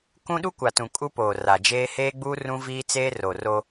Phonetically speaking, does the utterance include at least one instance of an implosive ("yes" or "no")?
yes